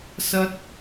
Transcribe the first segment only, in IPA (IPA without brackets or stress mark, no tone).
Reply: s